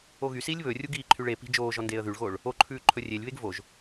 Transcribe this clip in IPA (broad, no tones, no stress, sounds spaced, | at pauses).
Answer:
o ɣ y s iː lʲ β ɵ rʲ u ɡ iː ǃʰ y ɭ e p i̤ d͡ʒ oː ʒ ɔ n d eː ə̯ ð y ɭ ɣ oː ɭ | o ǃʰ ʉː ǃʰ ɵ rʲ e lʲ β e ɡ v o ʒ